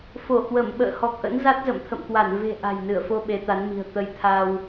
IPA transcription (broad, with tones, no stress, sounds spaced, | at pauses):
f o˧˩ h w ə˧˩ m ɓ ə̰ː˧˨ h ɔ˨˩ k̚ ʔ ə̰˧˥ n z a˦˥ t̚ z ə̰˧˨ m t̪ʰ ə̰˧˨ m k w a˧˩ n v e̤˨˩ ʔ a̤˨˩ j n ɨ˧˩ ə̯ f o˧ ɓ e˨˦ t̪ a˨˦ n m i̤˨˩ ə̯ t̪ ə˧ j t̪ʰ a˧ w